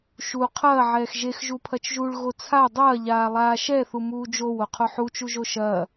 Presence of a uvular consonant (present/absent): present